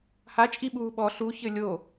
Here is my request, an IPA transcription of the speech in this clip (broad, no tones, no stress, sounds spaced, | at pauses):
h a t͡ʃʼ i ɓ uː ɓ ɔ ɬ u ç ɘ lʲ o